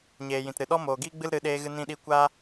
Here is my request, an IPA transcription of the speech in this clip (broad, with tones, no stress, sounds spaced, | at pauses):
ɲ eː˨ j ĩ˨ t ɾ ɨ˨ ɗ ɔ˦ m oː˨ ɡ iː˦ ɡ͡b ɨ˦ l ɾ ɨ˨˦ ɗ eː˧ ɣ ɨ˧ n ĩ˧ ɗ i˧ kʷ a˦